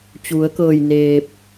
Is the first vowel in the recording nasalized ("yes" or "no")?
no